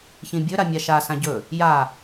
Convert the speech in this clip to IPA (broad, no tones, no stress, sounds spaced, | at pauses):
ç ĩ bʲ ɵ ɾ a mʲ a ʃ a s ã ɟ ɵ | j a